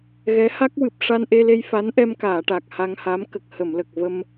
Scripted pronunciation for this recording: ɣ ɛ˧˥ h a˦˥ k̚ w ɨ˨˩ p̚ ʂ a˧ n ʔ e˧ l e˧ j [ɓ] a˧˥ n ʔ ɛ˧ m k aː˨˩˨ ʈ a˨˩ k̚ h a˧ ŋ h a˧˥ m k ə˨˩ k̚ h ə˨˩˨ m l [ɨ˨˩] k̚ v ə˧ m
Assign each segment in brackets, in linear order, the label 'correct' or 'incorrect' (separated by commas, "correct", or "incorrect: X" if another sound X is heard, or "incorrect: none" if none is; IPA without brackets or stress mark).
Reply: incorrect: f, incorrect: ə˨˩